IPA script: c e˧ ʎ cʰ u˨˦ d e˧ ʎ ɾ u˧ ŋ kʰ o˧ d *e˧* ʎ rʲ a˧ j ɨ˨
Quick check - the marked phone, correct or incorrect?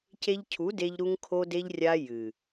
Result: correct